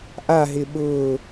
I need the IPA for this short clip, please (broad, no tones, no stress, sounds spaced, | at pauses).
ʔ a ɦ ɪ ɓ ʊː